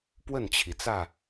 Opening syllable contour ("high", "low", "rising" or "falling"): falling